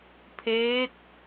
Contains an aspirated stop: yes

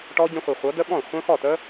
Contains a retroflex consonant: yes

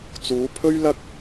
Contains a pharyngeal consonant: no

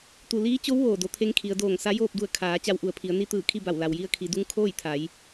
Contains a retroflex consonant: no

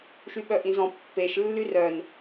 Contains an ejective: no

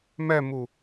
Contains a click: no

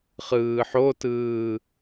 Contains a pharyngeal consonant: yes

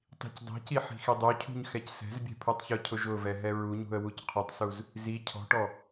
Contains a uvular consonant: yes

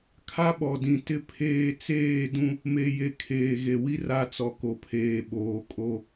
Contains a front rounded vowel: no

